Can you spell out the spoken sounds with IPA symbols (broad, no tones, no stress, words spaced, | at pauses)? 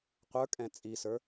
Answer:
qʷə˞ kʼɛ̃t͡sʼisə˞